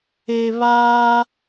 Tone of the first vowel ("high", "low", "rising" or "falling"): low